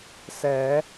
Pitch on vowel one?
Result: rising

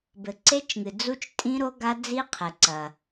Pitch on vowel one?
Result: low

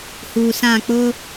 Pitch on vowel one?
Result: low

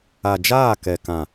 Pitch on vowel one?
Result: low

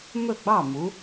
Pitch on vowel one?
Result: falling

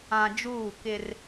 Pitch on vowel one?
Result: low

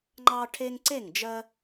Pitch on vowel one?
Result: high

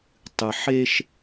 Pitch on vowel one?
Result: low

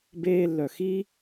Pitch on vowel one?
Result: high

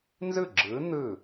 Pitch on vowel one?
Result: falling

